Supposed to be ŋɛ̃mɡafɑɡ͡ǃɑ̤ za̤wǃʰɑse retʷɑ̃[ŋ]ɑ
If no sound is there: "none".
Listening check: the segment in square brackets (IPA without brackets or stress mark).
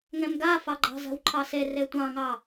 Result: ŋ